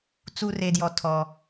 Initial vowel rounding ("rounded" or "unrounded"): rounded